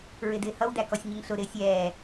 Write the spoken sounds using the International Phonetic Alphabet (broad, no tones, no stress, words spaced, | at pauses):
ɹɪdɪːhʌw dækɔsʲɲɪŋɬʊ ɾɪːsʲɛː